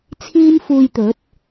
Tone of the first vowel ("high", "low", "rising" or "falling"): high